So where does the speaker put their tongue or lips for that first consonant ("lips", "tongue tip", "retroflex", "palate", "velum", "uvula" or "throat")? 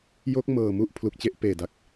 palate